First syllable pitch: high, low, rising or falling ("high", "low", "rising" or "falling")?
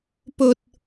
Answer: low